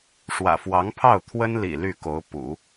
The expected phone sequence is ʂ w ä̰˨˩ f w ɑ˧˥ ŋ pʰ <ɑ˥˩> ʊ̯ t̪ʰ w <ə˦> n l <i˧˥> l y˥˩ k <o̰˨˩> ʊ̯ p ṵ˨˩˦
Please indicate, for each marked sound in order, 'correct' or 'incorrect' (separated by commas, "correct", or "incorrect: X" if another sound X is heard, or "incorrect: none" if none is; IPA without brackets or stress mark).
correct, incorrect: ə˥, incorrect: ḭ˨˩, incorrect: o˧˥